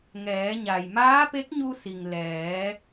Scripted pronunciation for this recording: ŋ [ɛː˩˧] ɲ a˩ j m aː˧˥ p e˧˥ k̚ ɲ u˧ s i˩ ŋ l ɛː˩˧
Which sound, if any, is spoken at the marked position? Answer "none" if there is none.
ɛː˩˧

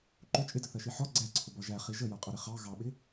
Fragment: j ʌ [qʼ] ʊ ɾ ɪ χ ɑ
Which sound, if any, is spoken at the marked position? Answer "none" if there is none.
qʼ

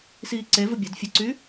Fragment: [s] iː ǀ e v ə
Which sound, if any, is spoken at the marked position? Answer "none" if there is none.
s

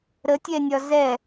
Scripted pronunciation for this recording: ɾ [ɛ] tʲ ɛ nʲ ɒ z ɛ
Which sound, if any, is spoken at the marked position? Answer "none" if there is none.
ə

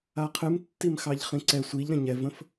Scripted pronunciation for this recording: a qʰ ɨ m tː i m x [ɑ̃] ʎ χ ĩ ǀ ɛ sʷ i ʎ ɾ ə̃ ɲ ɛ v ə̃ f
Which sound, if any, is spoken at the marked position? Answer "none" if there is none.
ɑ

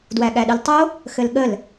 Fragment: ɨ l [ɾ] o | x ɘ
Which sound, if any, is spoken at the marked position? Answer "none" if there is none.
tˤ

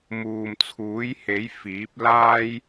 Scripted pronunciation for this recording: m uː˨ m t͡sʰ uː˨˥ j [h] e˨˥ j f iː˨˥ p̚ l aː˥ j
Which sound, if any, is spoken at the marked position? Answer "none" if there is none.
h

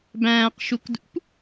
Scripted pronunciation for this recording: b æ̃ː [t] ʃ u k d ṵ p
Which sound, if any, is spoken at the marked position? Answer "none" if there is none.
q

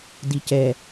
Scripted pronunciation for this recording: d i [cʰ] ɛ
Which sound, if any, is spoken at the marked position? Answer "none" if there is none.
c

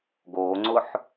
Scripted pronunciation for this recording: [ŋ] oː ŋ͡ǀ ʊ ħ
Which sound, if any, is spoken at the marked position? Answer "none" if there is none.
ɡ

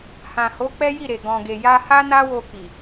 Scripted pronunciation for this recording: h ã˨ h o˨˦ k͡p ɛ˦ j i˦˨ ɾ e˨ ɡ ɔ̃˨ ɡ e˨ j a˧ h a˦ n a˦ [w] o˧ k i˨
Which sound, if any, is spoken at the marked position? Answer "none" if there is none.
w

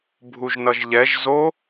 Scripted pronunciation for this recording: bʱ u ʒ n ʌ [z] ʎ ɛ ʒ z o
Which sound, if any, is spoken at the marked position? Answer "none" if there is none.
ʒ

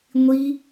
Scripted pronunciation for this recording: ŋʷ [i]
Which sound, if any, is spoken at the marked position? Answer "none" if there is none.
i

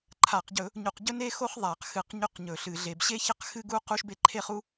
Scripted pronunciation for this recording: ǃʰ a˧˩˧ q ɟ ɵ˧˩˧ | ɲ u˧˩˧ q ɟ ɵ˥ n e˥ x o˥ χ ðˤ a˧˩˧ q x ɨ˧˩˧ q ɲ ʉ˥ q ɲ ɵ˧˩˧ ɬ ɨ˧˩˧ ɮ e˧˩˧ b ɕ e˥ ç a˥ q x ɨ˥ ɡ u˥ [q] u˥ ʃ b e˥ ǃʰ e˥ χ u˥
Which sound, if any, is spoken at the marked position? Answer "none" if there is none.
q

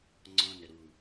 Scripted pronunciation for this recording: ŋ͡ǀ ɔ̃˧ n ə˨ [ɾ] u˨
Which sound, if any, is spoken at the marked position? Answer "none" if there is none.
ɾ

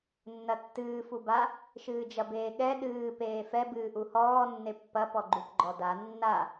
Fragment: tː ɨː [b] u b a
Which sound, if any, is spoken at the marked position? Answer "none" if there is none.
f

